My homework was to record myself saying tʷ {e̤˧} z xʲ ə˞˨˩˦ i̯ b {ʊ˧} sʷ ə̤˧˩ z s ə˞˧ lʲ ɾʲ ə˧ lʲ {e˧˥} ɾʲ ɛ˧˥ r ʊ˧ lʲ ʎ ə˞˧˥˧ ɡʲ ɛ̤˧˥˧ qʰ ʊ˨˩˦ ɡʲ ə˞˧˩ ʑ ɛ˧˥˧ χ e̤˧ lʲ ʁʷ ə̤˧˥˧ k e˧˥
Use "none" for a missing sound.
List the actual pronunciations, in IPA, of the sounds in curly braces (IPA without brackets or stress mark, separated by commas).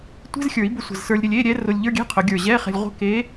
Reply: e̤˧˥˧, ʊ˧, e˧˥˧